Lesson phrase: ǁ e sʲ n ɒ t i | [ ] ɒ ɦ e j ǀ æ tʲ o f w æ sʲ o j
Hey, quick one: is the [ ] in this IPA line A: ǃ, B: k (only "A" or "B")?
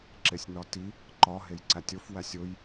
A